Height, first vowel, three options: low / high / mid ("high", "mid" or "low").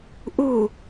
high